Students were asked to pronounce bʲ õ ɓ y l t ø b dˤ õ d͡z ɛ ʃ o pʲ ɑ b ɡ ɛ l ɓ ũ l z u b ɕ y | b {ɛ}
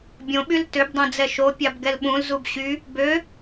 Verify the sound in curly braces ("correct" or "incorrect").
incorrect